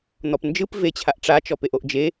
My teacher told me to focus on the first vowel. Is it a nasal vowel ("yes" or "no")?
no